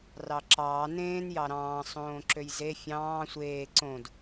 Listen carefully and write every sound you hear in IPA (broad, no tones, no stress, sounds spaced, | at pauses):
r ɑ ǁ ɑː n ẽː n j ɑ ɾ ɑ̃ː sˤ õː ǁ ø j z e fʲ ɑ̃ː sʷ eː ǀ õ d